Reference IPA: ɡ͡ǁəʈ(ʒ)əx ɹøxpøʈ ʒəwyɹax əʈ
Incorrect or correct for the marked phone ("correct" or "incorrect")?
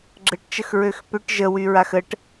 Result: incorrect